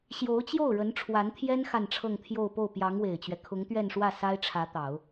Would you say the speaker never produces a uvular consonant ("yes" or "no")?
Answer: yes